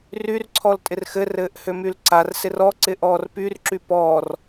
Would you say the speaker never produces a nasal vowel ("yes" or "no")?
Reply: yes